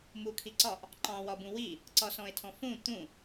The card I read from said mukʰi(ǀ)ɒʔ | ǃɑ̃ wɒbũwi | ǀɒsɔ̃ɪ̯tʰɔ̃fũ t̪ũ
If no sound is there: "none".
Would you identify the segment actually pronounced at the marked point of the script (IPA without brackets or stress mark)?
ǀ